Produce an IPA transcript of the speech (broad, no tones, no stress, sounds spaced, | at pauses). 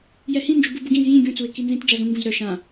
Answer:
j ɛ h ĩ n d͡ʒ u b u b u ɡ ĩ z j ĩ ɡʲ ũ t͡s u ɪ̯ k i n z ĩ t d͡ʒ a z ũ ŋ ɡ ũ z ɾ œ ʃ ã